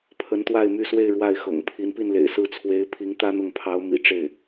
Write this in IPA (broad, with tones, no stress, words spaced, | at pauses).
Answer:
pʰə˧˥nt̪wa˥˧ɪ̯ my˥˧swe˥˧ɪ̯ ɻwa˥˩ɪ̯xɤ̰˨˩ŋ pʰi˧˥npi˥˩nlḛ˨˩ɪ̯ sɹ̩˥˩t͡sʰwe˧˥ɪ̯ pʰi˧˥ŋ t̪ä˥n̪ʊ˥˩ŋpʰɑ˧˥ʊ̯ mḭ˨˩ʈ͡ʂe˥˩ɪ̯